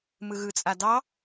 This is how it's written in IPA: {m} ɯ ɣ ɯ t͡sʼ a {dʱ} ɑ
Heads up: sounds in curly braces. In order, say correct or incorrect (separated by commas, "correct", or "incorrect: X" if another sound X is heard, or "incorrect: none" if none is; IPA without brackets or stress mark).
correct, incorrect: d